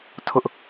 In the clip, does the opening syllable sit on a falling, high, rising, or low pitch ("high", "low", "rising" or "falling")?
high